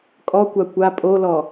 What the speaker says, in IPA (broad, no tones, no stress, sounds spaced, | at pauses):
kʼ ɔ kʷ a kʷ a pʼ o l ɔ